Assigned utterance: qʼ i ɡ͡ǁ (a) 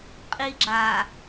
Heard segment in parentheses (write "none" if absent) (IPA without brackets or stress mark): a